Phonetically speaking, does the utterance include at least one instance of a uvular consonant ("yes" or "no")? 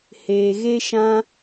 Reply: no